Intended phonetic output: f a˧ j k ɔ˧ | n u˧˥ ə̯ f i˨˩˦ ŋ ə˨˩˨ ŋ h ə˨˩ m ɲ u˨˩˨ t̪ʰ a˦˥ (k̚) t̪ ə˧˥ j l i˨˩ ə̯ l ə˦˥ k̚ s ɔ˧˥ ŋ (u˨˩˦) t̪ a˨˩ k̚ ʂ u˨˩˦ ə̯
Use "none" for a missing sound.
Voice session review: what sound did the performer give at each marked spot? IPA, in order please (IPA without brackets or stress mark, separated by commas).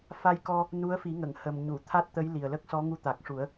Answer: t̚, u˧˥